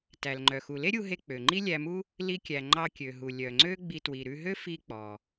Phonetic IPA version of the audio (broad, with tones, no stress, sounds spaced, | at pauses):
t æ˩ l ŋ͡ǃ œ˩ x u˩ l e˥ ɾʲ u˧ ɦ e˧ k͡p ø˩ ŋ͡ǃ i˥ lʲ æ˧ m u˥ | l i˧ kʲ æ˩ ŋ͡ǃ ɑ˧ kʲ ø˩ ɦ u˩ lʲ œ˩ ŋ͡ǀ ø˥ ɡ͡b i˧ t w i˩ ɾ ʉ˧ ɦ ø˥ f i˧ k͡p ɔ˩